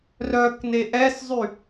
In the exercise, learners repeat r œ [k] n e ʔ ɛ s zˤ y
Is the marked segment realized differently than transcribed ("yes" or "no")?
no